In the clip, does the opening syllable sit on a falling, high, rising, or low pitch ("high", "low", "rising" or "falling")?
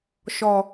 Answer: low